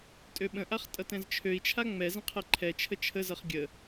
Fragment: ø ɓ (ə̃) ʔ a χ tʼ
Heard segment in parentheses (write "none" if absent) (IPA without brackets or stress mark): ə̃